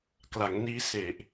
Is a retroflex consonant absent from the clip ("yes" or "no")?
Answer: yes